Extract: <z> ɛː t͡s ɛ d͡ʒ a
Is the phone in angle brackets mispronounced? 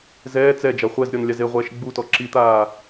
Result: no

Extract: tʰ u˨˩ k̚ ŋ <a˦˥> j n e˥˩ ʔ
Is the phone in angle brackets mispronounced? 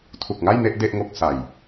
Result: yes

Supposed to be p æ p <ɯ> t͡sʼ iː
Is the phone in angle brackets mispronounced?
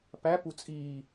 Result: yes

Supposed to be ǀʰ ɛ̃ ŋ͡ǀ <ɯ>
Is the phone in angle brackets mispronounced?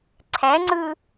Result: no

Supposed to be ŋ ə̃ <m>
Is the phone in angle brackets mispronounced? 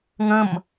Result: no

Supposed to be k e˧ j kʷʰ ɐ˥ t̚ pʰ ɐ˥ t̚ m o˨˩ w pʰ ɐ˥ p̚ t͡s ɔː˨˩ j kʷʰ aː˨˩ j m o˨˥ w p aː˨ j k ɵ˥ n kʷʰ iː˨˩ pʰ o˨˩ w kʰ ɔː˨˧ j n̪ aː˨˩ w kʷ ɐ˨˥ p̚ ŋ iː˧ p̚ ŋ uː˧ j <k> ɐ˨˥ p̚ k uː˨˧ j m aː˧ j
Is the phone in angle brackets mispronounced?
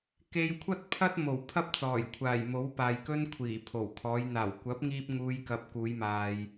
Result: no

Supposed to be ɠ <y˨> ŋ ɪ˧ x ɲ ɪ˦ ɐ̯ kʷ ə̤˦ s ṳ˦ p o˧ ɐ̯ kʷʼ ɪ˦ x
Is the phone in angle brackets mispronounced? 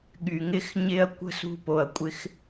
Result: no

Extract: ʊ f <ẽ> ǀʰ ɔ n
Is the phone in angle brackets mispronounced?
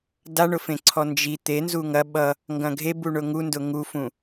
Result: no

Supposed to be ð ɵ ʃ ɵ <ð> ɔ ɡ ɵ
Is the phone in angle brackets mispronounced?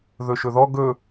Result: no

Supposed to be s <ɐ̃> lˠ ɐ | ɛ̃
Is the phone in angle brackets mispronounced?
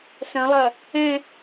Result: no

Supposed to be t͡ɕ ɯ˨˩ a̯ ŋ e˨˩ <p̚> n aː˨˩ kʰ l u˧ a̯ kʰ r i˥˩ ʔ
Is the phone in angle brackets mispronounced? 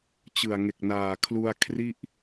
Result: yes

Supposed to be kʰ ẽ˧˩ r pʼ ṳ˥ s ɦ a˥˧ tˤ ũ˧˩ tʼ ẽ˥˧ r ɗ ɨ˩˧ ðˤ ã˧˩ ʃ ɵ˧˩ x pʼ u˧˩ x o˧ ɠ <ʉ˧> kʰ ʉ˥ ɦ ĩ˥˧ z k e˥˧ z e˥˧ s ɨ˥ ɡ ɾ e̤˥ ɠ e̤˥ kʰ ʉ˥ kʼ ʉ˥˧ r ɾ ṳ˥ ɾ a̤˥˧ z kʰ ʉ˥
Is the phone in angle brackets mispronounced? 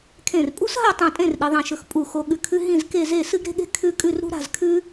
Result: no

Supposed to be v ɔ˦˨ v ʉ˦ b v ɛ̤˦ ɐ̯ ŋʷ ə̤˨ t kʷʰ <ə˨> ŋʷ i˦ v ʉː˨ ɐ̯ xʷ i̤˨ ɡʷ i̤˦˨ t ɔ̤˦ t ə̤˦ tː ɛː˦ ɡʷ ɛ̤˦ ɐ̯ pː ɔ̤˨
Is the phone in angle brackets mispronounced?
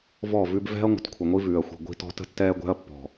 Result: no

